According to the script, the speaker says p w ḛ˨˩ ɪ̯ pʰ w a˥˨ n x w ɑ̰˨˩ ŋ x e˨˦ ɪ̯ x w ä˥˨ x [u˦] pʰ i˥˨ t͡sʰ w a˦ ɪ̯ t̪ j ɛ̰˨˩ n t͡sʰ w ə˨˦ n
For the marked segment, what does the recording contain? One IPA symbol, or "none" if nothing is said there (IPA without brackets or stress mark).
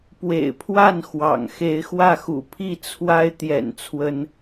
ṵ˨˩